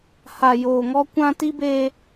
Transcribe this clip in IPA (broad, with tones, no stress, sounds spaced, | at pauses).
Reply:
h a˨ j oː˨ ŋ ɔ˦ kʷ ã˦ t i˦ b e˦